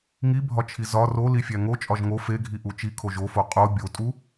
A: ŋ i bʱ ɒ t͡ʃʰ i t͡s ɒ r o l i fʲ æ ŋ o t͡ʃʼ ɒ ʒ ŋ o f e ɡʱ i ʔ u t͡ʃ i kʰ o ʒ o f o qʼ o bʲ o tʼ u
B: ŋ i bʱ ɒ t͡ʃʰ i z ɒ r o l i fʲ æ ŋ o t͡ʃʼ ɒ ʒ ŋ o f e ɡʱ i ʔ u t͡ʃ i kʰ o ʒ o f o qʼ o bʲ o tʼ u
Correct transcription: B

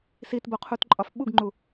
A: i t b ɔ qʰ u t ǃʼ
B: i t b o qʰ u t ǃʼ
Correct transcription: B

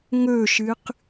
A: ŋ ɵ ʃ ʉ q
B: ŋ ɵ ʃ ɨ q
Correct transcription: B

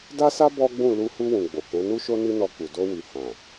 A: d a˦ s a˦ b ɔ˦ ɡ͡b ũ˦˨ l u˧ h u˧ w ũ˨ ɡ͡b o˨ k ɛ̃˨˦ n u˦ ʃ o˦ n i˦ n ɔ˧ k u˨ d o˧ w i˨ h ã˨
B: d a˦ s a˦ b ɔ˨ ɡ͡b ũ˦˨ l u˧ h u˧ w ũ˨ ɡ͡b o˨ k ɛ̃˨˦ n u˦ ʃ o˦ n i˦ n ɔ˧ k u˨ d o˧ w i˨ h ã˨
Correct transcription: A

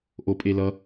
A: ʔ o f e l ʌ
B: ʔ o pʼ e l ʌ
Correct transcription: B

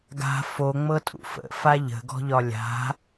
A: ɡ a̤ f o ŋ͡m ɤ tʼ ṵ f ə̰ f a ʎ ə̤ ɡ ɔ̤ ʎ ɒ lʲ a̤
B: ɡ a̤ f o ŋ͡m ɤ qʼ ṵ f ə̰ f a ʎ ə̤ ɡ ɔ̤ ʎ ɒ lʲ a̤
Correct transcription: A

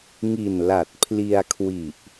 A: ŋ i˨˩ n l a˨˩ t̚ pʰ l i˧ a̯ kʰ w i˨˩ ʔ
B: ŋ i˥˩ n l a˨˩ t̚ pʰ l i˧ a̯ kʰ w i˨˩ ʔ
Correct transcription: A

